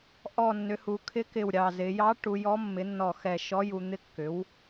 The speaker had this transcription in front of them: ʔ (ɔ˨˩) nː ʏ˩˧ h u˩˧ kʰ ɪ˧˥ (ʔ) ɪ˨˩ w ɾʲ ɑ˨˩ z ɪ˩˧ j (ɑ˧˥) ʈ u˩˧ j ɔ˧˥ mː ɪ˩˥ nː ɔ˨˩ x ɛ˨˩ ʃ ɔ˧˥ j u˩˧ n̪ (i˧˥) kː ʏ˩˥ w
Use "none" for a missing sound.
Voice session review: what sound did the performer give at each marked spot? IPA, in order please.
ɔ˨˩, k, ɑ˧˥, ɪ˧˥

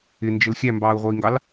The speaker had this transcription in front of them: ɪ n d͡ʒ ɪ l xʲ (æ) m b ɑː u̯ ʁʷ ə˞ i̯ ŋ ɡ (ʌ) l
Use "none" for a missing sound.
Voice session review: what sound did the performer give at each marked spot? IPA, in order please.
æ, ɑ

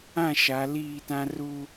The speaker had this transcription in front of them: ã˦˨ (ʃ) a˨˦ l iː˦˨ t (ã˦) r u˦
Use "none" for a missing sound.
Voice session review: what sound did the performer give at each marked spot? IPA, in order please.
ʃ, ã˦

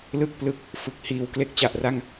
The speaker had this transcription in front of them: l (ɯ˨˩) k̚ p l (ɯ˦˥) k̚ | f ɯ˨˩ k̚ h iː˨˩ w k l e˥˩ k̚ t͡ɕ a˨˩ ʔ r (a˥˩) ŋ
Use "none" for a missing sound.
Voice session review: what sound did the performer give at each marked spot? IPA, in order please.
ɯ˥˩, ɯ˦˥, a˥˩

